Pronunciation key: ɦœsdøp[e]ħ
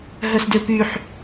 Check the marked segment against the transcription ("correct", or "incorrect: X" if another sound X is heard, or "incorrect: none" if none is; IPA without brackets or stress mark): incorrect: y